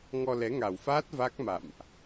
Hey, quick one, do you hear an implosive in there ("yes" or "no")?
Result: no